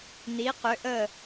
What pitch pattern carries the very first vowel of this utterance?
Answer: rising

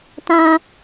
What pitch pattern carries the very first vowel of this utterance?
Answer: high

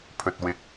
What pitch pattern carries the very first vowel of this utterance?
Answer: low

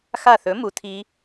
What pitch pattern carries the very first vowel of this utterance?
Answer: falling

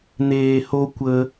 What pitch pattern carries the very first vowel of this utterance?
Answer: low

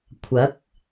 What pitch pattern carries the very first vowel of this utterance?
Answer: rising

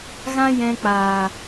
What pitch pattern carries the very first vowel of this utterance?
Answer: high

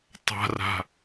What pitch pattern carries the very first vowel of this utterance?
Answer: low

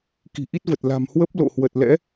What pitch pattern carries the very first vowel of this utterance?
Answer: low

